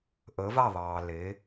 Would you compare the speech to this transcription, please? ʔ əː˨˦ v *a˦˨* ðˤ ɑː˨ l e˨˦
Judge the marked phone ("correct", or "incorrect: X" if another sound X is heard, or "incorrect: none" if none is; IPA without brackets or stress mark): correct